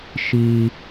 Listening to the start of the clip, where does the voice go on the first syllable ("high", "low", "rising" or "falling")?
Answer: low